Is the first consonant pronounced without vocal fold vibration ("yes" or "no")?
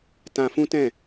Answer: yes